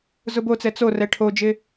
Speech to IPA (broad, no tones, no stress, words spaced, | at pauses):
zʊbot͡sɛ t͡sorɛ ʈʰod͡ʒɪ